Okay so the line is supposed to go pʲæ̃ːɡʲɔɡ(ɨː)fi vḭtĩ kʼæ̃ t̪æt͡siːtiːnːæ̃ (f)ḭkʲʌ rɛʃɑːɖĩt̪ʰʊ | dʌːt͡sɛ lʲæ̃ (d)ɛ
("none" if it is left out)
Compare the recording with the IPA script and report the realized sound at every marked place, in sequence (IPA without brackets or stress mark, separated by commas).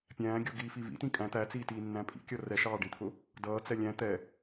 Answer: iː, pʼ, t̪